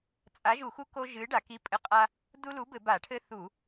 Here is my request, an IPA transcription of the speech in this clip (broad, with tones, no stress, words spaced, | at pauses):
t͡sʼa˨˥ʒu˧˩˧xu˦ ko˦ʒɨ˨˥ ɖa˧˩˧ki˨˥pʼɘ˨˥ qʼa˦ | du˦lu˨˥bɘ˧˩˧ ba˧˩˧ʈʰɘ˦θu˧˩˧